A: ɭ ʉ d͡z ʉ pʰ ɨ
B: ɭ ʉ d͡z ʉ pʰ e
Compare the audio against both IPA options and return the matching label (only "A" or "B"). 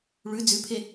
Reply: B